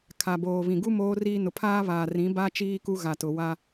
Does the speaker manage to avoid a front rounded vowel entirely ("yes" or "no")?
yes